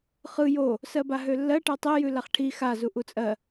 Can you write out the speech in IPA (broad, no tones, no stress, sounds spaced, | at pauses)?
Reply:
χ ɯ j o | s ɜ b a ɦ ø lː ɜ ʈ ɜ tˤ e j ʉ l a χ ʈʰ i x a z u ʔ u t͡sʼ ɜ